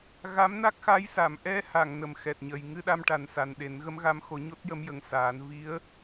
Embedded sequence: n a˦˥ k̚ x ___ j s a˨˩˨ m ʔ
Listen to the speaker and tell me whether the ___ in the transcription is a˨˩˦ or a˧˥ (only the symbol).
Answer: a˧˥